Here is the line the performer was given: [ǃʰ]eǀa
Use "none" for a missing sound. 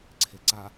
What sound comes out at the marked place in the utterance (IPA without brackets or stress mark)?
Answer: ǀʰ